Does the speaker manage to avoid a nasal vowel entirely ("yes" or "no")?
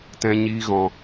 no